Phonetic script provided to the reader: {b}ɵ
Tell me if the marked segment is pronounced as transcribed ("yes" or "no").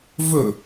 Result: no